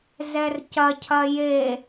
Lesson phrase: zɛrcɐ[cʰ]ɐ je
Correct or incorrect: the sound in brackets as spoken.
correct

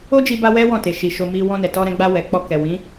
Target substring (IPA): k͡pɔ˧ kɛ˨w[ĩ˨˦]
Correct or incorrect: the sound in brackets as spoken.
correct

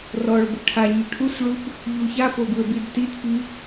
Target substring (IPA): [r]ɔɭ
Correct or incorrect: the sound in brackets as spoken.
correct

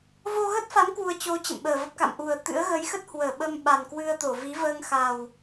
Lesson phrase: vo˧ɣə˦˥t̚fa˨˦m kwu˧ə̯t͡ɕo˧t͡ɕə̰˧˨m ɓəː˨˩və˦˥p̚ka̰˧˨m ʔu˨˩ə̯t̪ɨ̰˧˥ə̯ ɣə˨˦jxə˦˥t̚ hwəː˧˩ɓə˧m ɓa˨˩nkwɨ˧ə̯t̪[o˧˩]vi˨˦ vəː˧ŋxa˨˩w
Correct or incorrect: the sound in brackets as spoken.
correct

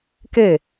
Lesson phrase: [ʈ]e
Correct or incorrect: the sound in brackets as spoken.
incorrect: k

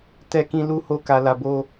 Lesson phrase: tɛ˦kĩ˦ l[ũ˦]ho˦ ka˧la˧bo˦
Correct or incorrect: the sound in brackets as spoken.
incorrect: u˦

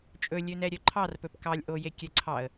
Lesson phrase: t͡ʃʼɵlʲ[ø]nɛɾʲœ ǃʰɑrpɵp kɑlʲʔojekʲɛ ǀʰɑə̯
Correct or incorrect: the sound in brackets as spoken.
correct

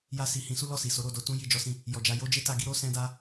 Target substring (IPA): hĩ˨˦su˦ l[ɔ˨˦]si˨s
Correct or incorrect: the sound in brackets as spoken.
incorrect: ɔ˦˨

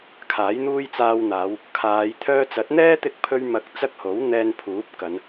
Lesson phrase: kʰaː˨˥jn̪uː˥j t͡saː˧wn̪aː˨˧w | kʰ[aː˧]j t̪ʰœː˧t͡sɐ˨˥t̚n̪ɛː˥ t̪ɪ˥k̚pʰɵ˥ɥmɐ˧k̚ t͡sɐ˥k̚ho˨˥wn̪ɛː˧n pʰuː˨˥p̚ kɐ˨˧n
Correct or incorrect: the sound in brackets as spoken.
incorrect: aː˨˧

